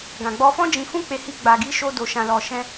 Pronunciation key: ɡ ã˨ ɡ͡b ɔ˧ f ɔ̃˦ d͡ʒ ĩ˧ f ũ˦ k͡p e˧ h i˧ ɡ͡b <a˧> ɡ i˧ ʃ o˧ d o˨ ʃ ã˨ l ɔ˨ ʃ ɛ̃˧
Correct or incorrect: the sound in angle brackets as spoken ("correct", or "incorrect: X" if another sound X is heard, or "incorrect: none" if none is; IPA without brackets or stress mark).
incorrect: a˨